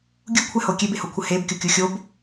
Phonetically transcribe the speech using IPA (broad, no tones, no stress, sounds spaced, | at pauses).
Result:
ɡʲ u kʷʰ ɛ h o kʲ e b e h o kʷʰ ə h e b kʲ o kʲ u xʲ o b